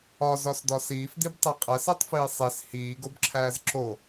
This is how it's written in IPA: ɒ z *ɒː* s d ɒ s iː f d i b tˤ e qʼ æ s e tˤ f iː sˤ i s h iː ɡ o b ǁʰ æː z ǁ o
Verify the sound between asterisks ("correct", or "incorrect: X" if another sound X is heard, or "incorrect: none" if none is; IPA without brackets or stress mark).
incorrect: ɒ